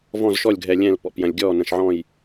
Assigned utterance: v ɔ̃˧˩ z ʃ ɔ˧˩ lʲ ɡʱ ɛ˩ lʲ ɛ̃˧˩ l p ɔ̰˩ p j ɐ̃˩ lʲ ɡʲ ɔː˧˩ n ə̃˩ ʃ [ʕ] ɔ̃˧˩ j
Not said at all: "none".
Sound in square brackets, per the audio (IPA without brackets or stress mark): ʕ